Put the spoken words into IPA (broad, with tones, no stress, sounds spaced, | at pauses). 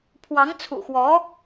pʰ w ɑ˧˥ ŋ t͡sʰ ṵ˨˩ x w ɔ˧˥